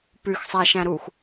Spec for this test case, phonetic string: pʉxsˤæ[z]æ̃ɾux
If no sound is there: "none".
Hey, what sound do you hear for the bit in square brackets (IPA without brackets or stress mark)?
ʃ